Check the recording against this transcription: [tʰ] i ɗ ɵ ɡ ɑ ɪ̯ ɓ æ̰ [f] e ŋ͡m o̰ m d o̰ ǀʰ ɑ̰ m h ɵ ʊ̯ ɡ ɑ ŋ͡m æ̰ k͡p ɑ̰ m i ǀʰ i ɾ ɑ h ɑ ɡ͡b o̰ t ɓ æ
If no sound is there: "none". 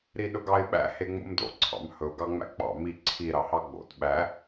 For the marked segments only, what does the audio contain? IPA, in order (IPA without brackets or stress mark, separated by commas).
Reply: ɾ, h